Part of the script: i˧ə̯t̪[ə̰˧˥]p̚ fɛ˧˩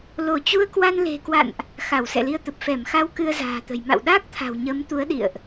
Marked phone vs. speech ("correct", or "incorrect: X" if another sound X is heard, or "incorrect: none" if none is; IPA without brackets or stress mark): incorrect: ə˨˩